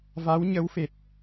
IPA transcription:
v a˧˥ w ɲ ə˧˥ w f e˨˩ t̚

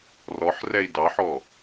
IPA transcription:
r ɔ ħ r ɛ i̯ d ɑ ħ ɔ

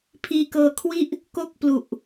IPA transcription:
pʰ iː˧ k ɤː˧ kʰ w i˥˩ ʔ | k o˥˩ k̚ p l u˨˩ ʔ

